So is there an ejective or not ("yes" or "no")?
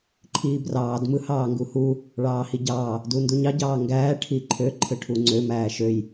no